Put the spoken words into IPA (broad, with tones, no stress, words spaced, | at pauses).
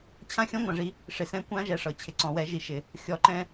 t͡ɕʰã˦ xʲɔ̃˦ŋʷã˨ʐi˧ | ʂɪ˨sɛ̃˧kʷã˦ ʒɛ˧ʂɤ˨t͡ɕʰɪ˧ ǀɔ̃˨wɛ˨˦ ʒi˨ʃɪ˨ | xʲɔ˨ ǃɛ̃˧